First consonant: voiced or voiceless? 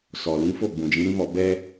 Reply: voiceless